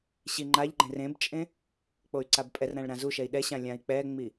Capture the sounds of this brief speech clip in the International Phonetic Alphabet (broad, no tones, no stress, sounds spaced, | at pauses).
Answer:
ɕ i ŋ͡ǃ a ʎ ɡ͡ǃ ẽ r ẽ b t͡ʃʼ ẽ | k͡p o y̯ ǀ a b pʼ ɛ r ɾ ã ɭ ɾ ã z u ʃ ɛ i̯ ɗ ɛ ɕ ã lʲ ã i̯ k͡p ɛ ŋ͡m i